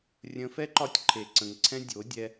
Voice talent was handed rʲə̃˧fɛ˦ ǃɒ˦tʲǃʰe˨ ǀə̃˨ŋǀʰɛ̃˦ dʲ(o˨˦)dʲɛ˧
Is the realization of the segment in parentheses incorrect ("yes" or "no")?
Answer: no